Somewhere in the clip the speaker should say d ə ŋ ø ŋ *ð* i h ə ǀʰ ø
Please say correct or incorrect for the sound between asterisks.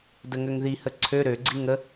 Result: correct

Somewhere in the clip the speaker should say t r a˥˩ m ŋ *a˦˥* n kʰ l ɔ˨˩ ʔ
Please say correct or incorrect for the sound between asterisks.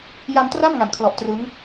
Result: incorrect: a˩˦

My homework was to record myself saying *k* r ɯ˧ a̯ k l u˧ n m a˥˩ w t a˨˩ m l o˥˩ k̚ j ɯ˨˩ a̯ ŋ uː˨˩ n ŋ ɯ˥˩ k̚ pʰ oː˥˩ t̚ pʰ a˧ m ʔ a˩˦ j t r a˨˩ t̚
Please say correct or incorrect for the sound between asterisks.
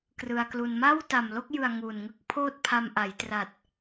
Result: correct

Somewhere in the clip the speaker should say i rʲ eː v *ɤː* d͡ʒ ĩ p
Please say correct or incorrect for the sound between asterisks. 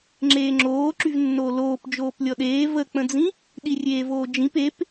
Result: incorrect: oː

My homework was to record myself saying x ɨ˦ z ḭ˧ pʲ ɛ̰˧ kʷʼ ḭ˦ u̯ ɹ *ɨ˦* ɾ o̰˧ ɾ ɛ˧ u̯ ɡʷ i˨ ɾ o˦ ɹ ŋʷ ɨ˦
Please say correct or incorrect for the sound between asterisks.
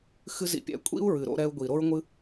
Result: incorrect: ɨ˨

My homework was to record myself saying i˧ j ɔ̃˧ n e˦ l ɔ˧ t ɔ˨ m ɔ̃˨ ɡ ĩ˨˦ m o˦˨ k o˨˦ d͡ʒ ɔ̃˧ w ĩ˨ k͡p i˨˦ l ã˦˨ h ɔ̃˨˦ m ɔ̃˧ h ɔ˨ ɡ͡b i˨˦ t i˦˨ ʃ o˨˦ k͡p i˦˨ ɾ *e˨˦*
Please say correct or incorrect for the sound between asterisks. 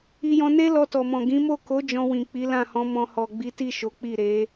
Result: correct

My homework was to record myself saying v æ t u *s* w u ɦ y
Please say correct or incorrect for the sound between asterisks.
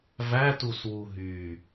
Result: correct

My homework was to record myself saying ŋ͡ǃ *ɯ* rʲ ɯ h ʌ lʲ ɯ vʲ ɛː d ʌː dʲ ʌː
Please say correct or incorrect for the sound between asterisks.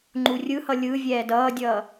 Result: incorrect: u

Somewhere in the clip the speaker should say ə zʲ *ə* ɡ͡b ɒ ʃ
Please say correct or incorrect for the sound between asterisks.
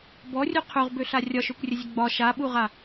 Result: correct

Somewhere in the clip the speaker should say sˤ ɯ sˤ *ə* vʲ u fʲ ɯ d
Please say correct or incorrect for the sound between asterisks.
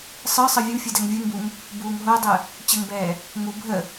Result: incorrect: ɯ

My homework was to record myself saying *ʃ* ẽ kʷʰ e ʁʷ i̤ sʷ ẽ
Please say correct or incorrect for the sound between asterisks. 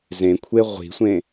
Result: incorrect: z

